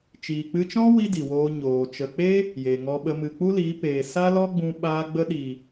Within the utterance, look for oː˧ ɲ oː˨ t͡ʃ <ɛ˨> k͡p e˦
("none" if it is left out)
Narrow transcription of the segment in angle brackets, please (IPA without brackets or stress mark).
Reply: ə˨